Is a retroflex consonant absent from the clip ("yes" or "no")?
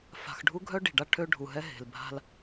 no